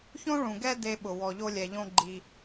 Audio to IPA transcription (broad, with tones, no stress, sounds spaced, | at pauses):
ç õ˥ ɭ ũ˩ ɡ ɛ˥ d e˧ ɓ ʊ˩ w ɔ˩ ʎ o˧ lʲ ɛ˩ ʎ õ˧ ɡ͡ǃ i˩